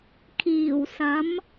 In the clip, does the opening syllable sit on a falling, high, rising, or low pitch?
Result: low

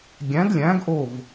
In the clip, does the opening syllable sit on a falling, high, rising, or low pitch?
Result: rising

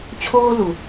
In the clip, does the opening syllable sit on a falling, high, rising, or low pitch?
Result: high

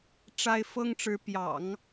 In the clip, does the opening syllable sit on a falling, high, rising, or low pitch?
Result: high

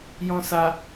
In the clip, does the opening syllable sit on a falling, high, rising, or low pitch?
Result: low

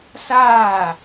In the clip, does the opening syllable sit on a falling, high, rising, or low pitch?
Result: falling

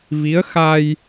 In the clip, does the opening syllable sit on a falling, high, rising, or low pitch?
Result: rising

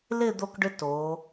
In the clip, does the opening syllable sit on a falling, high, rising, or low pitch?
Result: falling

